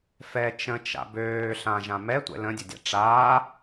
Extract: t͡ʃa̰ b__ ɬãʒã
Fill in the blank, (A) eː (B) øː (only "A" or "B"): B